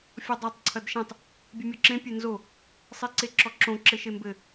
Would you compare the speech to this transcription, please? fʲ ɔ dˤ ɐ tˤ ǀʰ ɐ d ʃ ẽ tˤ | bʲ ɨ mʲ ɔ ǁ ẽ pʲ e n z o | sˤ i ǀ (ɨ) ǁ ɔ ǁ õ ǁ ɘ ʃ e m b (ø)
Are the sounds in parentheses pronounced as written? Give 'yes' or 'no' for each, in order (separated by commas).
no, no